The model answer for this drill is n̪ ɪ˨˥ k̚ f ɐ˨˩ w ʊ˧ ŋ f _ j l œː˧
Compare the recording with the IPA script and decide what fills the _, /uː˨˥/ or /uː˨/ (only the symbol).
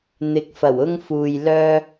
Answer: uː˨